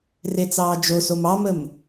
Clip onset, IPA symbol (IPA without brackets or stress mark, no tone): r